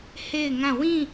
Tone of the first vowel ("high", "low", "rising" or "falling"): falling